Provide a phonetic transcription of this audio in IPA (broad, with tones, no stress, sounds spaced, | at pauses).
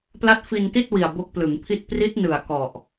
p l a˦˥ t̚ f i˧ n t i˥˩ t̚ w i˨˩ a̯ b o˦˥ k̚ p l ɯ˩˦ ŋ pʰ i˥˩ t̚ p r i˦˥ t̚ n ɯ˨˩ a̯ k ɔ˨˩ ʔ